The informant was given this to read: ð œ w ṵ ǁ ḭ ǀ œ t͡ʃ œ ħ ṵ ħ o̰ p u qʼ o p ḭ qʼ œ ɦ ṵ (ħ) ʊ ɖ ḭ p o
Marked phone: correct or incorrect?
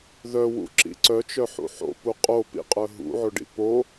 incorrect